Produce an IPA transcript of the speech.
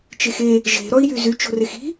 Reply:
t͡ʃ e x e | ʒ e̤ ɾ ɔ i̯ j y z y t͡ʃ o̤ r e x i̤

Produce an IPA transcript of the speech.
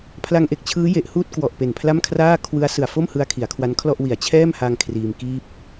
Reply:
pʰ l a˧ ŋ ʔ e˨˩ k̚ t͡ɕʰ ɯː˦˥ j e˨˩ ʔ h uː˥˩ t̚ k w ɔ˨˩ ʔ p e˨˩ n pʰ l a˥˩ m kʰ r aː˥˩ kʰ w ɯ˦˥ a̯ s ɯ˨˩ a̯ f o˥˩ m h ɯ˦˥ a̯ kʰ i˩˦ a̯ kʰ w a˦˥ n kʰ l ɔ˥˩ ʔ w i˨˩ a̯ t͡ɕʰ ɛː˥˩ m h a˧ ŋ kʰ r iː˧ m k iː˥˩ p̚

